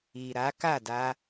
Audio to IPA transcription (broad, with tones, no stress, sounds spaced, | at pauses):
i˨ ɾ a˨˦ k a˦˨ d a˧